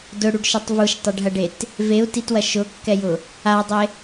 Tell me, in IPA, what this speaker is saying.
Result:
d ʊ ɽ u ɖ ʃ ɛ tˤ v u ʃ tˤ ɐ ɖ ɦ ɐ ɖ e t | v e u̯ t i t w ɐ ʃ ʊ kː ɛ j ʊ | a dˤ e

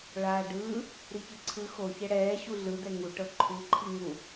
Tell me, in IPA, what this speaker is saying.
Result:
ɭ aː ɖ ɯː | ɾ i ç ɯ ǀʰ ɯ x o ç ɛ ɽ ɛː ɕ u ɮ ɯ d ɛ ŋ u ʈ ɤ ǃʰ u ǃʰ i ŋ u

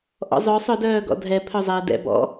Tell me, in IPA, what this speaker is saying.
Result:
ʔ ɔ̰ zˤ œ sˤ œ d œː ɡ ɔ̰ dʱ ɛ pʰ œ zˤ ɛː d ɛ̰ b ɔ̰

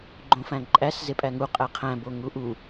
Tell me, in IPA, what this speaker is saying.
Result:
ɡ͡ǃ õ f æ̃ ǃʼ æ s z e pʼ æ ŋ u qʼ æ qʰ æ̃ b o ŋ u ʔ u

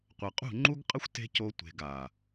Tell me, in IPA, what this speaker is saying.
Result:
qʷ ɐ˨ qʼ ṳ˦˨ ŋ͡ǃ u˦ ɡ qʼ ɐ˦ xʷ t e̤˦ c o˧ tʷ e̤˧ ɡ a˨

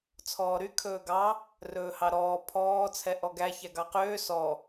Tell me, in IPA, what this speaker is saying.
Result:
t͡sʰ ɔː ɾ y kʰ ɵː ɡ ɑ | r ɵː h ɑ ɾ ɔː pʰ ɔː t͡sʰ ɛ ʔ ɔ ɡ æ ç æ ɡ ɑ q øː s ɔ

